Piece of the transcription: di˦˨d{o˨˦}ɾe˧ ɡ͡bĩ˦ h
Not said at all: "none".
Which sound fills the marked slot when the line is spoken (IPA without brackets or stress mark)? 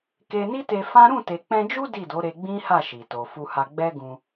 o˨˦